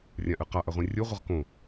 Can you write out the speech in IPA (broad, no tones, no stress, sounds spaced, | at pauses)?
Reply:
rʲ ã ʔ ɨ q a ʔ ɐ ʁʷ ĩ rʲ u ʁʷ ɨ ʁ k õ